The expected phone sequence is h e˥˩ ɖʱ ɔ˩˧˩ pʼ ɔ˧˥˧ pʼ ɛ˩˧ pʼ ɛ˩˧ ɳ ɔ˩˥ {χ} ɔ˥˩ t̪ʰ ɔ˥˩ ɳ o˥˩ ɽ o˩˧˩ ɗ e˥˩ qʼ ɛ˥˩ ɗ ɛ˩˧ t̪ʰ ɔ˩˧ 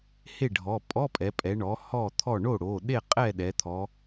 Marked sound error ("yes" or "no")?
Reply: yes